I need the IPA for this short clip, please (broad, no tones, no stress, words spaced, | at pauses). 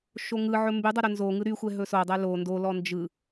ʃoŋɯʕɵ mbydˤʌ ɾɵnzoŋɯ ɾyxʷɛ ɦɵsodˤɛ lo ndolɔ nd͡ʒɯ